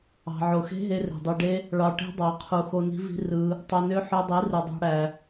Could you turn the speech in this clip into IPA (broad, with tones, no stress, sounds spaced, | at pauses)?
ɑ̤˨ ʕ o˨ x e̤˦ ɦ e˧ r e̤˨ dˤ e˧ ɖ e˦ | ɭ ɑ˧ ʈ e̤˦ dˤ ɑ˨˦ qʰ u˨ x o˧ n i̤˦ v i̤˦ r ɯ˧ | tˤ o˧ n ø˦ ħ ø˧ dˤ i˨˦ r u˧ dˤ ɑ̤˦ ɽ æ˧